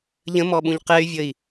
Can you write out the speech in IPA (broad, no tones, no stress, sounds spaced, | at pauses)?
ʎ ə̃ m ɔ ɓ ũ ʎ q ɛ y̯ vʲ ə i̯